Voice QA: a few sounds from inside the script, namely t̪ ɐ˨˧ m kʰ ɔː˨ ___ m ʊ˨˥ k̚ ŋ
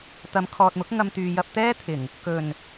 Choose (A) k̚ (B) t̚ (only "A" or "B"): B